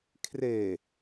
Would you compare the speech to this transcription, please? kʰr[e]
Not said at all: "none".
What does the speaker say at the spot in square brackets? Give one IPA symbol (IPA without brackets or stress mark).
e